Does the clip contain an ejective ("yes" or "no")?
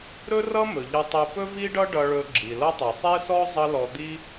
no